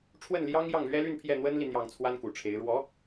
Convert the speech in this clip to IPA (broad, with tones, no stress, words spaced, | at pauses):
ʈ͡ʂʰwə˥˩nljɑ˥ŋ jɑ˥˩ŋlɥɛ˥ly˥˧n pʰjɛ˥˩n̪wə˥nli˨ n̪jɑ˥˩ŋt͡sʰwa˥nku˨˩ʈ͡ʂʰe˧˥ɪ̯ ɻwɔ˧˥